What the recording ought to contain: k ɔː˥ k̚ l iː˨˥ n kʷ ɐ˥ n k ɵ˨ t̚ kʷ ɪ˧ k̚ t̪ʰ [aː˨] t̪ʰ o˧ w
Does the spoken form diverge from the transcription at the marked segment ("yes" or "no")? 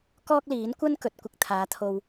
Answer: yes